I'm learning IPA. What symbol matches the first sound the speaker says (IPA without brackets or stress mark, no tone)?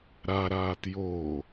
ɾ